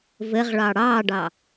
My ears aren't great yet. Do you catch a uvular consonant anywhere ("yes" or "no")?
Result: yes